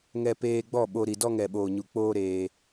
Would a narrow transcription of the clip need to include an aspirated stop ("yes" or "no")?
no